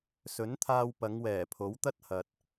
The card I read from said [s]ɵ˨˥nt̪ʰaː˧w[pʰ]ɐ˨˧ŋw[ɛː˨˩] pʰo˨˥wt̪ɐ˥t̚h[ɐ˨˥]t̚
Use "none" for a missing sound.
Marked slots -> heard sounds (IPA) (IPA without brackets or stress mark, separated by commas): s, p, ɛː˨˩, ɐ˨